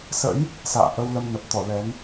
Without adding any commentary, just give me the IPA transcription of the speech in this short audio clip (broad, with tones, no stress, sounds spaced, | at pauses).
s ə̰˧˥ j | s a̰ː˧˨ ʔ ə˧ w l ə˧ m n ə˨˩ p̚ t̪ ɔ˧˩ l ɛ˨˦ n